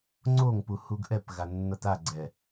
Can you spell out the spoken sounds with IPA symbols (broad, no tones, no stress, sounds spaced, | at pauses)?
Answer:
ŋ͡ǀ o ŋ p u h u ɡ ʔ ɛ p ɣ a nː ʌ t a ɡ͡ǀ ɛ